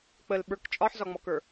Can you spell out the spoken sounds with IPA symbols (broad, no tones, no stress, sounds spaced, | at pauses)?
k͡p ə l ɓ ə˞ k t͡ʃʼ ɒ ħ z ɒ ŋ͡m ɔ k ə˞